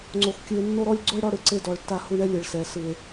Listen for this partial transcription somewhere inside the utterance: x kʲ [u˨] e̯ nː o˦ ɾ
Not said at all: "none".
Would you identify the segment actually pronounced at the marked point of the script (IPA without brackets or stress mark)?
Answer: ɯ˨